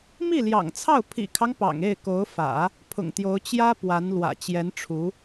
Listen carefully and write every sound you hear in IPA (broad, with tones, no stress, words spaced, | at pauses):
mi˥˩ljɑ̰˨˩ŋt͡sʰɑ˥˩ʊ̯ pʰḭ˨˩kʰɑ˦ŋ pɑ̰˨˩ŋe˥˩ɪ̯ko˧˥ʊ̯ fä̰˨˩˦ | pʰʊ̰˨˩ŋt̪jo˧˥ʊ̯ t͡ɕjä˥ pwa˧˥nlwä̰˨˩ t͡ɕjɛ˧˥nʈ͡ʂʰu˧˥